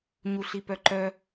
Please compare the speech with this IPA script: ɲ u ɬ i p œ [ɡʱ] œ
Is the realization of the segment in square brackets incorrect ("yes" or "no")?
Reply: yes